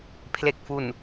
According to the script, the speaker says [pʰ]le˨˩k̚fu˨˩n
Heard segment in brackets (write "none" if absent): pʰ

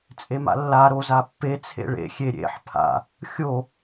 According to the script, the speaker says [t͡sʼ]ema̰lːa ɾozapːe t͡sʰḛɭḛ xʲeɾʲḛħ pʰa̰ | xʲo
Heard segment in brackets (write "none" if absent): t͡sʼ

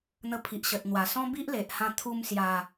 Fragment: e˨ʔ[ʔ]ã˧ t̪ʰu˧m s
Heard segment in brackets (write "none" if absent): h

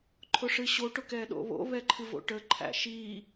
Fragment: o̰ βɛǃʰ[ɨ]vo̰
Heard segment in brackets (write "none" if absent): ɨ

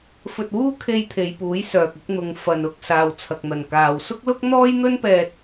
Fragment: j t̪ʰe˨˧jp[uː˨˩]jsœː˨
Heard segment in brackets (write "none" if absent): uː˨˥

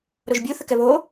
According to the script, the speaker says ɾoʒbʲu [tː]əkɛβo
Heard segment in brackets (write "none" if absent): θ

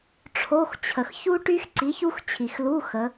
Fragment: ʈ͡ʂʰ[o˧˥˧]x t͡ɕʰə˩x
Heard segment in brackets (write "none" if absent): o˧˥˧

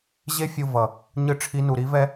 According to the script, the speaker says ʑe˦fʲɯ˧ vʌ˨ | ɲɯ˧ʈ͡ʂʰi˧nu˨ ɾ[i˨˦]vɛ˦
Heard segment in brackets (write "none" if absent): i˨˦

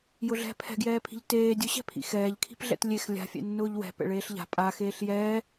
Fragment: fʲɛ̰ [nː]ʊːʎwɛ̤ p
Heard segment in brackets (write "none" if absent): nː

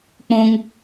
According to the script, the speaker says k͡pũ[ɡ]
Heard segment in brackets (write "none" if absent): ŋ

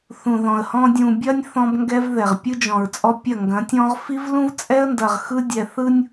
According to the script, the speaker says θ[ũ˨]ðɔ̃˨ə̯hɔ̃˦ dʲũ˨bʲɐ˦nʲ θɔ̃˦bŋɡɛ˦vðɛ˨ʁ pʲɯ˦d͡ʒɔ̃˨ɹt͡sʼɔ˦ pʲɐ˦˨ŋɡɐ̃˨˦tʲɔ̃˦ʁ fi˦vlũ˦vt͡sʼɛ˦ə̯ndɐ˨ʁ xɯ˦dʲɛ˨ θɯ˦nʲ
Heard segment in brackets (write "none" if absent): ũ˨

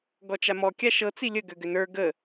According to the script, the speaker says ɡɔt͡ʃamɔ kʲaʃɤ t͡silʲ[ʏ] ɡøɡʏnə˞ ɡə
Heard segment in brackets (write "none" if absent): ə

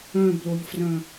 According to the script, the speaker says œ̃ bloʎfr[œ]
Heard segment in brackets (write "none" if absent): œ̃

